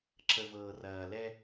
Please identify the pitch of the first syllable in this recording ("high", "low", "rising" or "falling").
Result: low